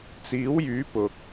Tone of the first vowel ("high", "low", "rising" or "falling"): rising